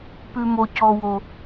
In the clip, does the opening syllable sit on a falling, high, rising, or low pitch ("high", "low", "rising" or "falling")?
high